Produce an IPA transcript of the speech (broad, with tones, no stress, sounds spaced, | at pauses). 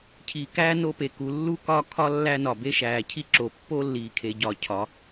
cʰ iː˨ k æː˦ n o˦ p e˨ k u˨˦ lː u˦ k ɒ˦ kʰ ɒ˦ lː æ˦ n ɒ˨ b e˦ ʃ æː˨ cʰ i˦ ǁ o˨ pː o˦ lː iː˨ kʰ e˨ ɟ ɒː˨ cʰ ɒ˨˦